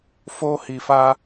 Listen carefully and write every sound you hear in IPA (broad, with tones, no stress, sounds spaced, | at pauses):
f oː˦ h i˨ f aː˦